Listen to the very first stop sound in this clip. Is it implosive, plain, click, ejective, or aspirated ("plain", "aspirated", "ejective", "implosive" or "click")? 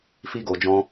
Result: plain